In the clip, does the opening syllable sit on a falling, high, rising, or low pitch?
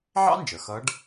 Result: high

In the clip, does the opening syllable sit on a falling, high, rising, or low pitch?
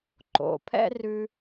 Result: low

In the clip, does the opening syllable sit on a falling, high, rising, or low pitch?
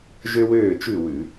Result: high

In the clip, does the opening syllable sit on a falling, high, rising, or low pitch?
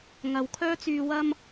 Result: low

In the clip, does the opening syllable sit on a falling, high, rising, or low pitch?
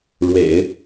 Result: low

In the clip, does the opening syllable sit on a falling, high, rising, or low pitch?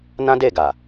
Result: high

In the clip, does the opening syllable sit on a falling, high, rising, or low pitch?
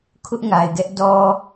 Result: high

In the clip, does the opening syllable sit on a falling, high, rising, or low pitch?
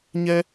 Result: high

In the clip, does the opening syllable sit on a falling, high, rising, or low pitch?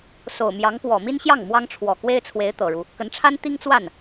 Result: low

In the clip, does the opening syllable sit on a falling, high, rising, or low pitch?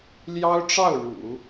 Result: high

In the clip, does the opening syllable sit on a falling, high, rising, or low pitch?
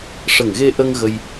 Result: low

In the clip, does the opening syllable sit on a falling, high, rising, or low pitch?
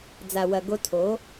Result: low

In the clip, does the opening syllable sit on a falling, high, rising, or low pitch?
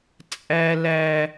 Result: high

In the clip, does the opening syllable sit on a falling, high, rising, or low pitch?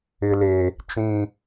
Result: high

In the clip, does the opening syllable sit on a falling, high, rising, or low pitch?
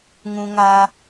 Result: low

